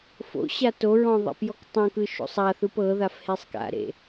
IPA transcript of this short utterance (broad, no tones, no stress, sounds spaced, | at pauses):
f o̰ ɕ a t o ɹ ɔ̃ ðˤ a̰ p j ɔ k tˤ õ k ɯ ʃ o̰ sˤ a θ ɯ p ɤ ð a f h e sˤ k a̰ ɾ ḛ